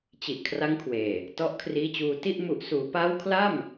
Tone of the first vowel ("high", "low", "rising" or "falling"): low